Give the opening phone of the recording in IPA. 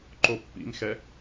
ǃ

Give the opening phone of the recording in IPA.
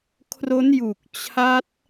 kʰ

